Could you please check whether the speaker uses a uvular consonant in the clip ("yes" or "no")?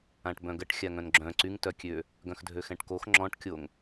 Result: no